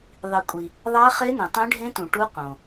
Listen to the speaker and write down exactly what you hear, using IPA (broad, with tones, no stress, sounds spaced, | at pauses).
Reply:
ðˤ i˨ kʷʼ i˨ | ðˤ æ˦˥ χ e˦˥ n ẽ˨ tˤ ẽ˦˥ ɖʱ ẽ˦˥ t ũ˨ ʈ u˦˥ q õ˨